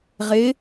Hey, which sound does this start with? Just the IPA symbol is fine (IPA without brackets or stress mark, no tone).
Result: ʁ